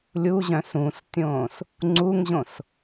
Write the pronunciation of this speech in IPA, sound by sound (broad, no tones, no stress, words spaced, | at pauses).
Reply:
lʲuʑœ̃ sũstʲõːs | ŋ͡ǀuŋʑõs